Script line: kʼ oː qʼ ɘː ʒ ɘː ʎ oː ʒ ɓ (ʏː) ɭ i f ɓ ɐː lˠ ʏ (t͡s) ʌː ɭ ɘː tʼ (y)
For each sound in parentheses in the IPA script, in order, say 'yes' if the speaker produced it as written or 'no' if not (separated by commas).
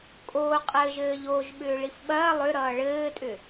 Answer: yes, no, no